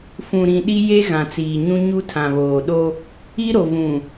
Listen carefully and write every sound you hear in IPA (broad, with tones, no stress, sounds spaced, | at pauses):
f ũ˨ ɾ ĩ˨ ɗ i˦ j e˦ ɣ ã˨ t͡s iː˨ ɲ ũ˦ ɲ u˦ tʰ ã˨ β oː˨ ɗ o˦ | i˦ ɾ o˨ v ũ˨